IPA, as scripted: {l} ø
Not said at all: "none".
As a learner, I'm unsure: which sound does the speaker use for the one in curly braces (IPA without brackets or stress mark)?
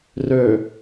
r